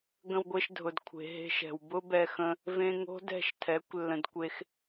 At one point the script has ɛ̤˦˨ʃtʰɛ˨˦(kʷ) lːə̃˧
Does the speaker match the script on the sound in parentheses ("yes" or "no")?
yes